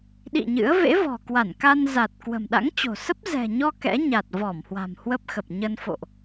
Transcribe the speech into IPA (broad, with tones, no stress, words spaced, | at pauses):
ɗḭ˧˨ ɲɨ̰˧˥ə̯ vḛ˧˥vɔ̤˨˩kwa˧˩nka˧n za˨˩t̚ kwə̤˨˩mɗa̰˧˥ŋt͡ɕo̤˨˩sə˦˥p̚ zɛ̤˨˩ɲɔ˧ kɛ̰˧˥ɲa˨˩t̚ vɔ˧˩mhwa̤˨˩m hwə˦˥p̚xə˨˩p̚ɲə˧n fo̰˧˨ʔ